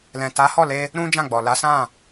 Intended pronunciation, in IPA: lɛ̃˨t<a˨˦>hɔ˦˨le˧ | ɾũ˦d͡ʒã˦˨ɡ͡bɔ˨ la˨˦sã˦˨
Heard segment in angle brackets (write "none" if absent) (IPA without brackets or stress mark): a˨˦